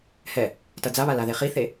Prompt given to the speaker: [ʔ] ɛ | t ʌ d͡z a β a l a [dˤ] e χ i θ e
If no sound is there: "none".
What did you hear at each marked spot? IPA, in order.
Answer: h, ð

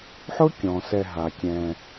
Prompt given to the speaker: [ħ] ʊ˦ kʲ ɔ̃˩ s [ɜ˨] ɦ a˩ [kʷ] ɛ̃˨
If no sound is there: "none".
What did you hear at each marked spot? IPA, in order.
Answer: ħ, ɛ˨, kʲ

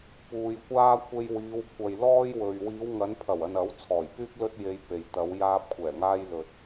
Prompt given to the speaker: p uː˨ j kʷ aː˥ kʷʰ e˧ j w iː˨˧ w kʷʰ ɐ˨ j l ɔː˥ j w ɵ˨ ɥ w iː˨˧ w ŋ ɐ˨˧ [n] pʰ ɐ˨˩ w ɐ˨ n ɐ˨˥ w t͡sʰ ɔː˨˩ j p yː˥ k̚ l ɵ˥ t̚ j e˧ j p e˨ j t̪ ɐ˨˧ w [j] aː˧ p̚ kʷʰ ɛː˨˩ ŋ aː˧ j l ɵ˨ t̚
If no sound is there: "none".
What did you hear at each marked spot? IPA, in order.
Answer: n, j

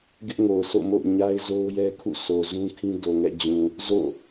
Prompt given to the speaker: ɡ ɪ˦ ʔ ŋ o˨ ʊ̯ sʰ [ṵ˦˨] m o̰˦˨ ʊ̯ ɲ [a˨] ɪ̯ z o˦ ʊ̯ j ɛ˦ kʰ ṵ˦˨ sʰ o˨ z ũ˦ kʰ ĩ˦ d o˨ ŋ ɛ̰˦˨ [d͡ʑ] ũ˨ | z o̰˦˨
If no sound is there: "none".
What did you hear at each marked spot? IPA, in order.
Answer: o̰˦˨, a˦, d͡ʑ

